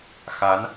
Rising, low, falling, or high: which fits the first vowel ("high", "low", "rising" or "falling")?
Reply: rising